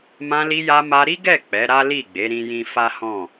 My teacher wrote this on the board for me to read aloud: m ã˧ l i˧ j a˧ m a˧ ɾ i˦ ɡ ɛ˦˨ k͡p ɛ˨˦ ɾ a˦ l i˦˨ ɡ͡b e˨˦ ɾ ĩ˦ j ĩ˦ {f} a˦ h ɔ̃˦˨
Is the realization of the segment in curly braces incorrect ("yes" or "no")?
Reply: no